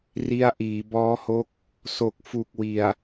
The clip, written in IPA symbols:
r i˧ a̯ ʔ iː˩˦ b ɔː˦˥ h o˦˥ k̚ | s o˨˩ k̚ f u˨˩ k̚ w i˨˩ a̯

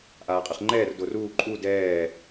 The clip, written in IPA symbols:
ʔ aː qʼ ɨ χ ŋ͡ǃ ɛː r d o r uː ǃʼ u d ɛː

